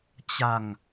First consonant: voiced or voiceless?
voiceless